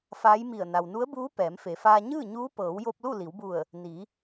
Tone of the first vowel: rising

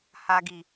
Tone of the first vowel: low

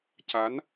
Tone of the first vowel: rising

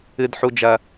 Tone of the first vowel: high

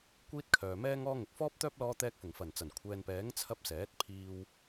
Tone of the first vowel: high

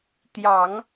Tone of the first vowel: low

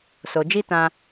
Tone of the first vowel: low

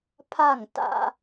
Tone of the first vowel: falling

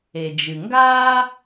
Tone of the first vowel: low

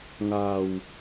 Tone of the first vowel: low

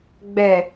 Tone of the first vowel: low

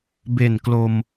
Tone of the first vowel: low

